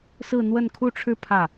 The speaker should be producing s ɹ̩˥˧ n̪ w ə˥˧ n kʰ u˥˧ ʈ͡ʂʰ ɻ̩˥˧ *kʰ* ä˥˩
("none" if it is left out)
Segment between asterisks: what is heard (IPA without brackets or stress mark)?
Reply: pʰ